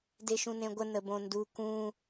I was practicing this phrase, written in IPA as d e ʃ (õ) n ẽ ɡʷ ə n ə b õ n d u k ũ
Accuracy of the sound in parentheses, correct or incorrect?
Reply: incorrect